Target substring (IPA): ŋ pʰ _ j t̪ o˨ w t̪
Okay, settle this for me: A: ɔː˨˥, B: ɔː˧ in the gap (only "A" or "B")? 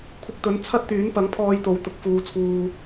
B